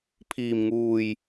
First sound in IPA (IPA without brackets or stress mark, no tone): pʰ